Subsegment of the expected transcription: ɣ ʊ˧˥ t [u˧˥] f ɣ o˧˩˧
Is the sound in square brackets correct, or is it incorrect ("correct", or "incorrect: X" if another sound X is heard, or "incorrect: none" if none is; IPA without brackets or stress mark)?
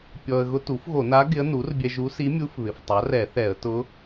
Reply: incorrect: u˩˥